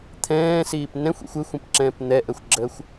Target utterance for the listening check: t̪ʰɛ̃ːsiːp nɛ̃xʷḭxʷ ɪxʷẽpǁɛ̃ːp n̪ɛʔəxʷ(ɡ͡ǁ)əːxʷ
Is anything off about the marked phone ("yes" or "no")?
no